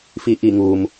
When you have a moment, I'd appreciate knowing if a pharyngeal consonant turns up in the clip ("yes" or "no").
no